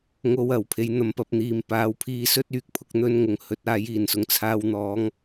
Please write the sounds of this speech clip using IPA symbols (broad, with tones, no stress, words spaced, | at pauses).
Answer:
ŋo˧wɐ˨˩w pʰe˨˥jn̪ɐ˨˥mpɐ˨˥p̚n̪iː˨m paː˨˧wpʰiː˧sɵ˥t̚ yː˧k̚ pʰʊ˧k̚ n̪ɵ˥nŋʊ˨˧ŋhɵ˧t̚ aː˨˥jiː˨˩nsʊ˨ŋ t͡sʰaː˧wn̪ɔː˨˥ŋ